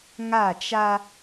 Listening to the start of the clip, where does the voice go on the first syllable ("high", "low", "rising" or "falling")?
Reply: falling